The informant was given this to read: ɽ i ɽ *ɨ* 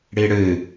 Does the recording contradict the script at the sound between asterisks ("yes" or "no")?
no